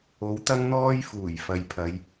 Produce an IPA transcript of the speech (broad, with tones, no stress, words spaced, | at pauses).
o˨˥wt̪ɐ˥ŋn̪ɔː˥jfuː˨˩j fɐ˨jpʰɐ˨˧j